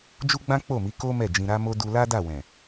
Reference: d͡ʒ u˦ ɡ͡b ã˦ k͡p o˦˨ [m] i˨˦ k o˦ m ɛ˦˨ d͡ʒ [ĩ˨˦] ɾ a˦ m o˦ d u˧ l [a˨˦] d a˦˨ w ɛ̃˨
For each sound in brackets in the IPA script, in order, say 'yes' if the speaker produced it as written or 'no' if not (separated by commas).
yes, no, no